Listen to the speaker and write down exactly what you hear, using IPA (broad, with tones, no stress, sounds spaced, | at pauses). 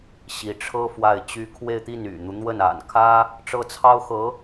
ɕ i˧˥ ʈ͡ʂʰ ɤ˥ f w a˥˩ ɪ̯ t͡ɕ y˥ kʰ w e˥˧ ɪ̯ t̪ i˥˩ n y̰˨˩ n̪ u˦ n̪ w ə˥˩ n a̰˨˩ n kʰ ä˥ | ʈ͡ʂ ɤ˥˩ t͡sʰ ɑ˥ ʊ̯ x ɤ˧˥